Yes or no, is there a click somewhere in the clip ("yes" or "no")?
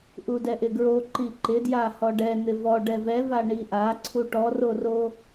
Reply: yes